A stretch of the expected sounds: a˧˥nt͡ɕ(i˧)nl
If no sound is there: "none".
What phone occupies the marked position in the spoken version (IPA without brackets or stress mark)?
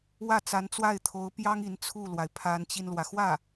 i˧